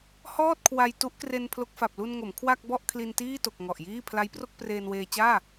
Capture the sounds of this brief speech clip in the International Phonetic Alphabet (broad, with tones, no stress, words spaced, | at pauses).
hɔː˥˩t̚kʰwa˧j tu˦˥ʔkre˧n pʰlo˦˥k̚fa˨˩p̚ lu˧nŋo˩˦m kʰwa˥˩k̚bɔ˥˩ʔ kʰli˧ntiː˥˩to˨˩k̚ ŋɔ˨˩ʔjiː˥˩ pʰla˦˥jpro˥˩k̚ preː˧nweː˧t͡ɕaː˥˩